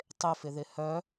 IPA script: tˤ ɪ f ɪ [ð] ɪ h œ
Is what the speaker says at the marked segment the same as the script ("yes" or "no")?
yes